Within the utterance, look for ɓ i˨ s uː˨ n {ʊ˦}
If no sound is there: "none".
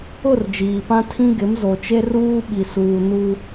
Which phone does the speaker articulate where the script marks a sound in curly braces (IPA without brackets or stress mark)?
u˦